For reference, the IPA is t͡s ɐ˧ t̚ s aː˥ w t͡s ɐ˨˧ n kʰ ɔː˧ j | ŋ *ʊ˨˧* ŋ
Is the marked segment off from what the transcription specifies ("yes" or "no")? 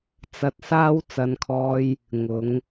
no